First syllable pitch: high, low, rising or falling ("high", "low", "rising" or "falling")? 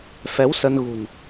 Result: rising